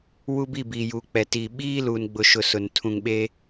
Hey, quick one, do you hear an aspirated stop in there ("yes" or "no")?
yes